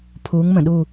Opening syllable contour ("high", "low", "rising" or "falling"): rising